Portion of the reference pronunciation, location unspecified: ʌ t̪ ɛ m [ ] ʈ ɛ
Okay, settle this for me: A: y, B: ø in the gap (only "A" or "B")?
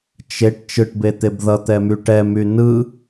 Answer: A